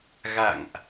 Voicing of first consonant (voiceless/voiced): voiced